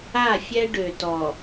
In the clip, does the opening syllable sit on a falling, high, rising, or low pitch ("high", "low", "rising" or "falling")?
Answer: falling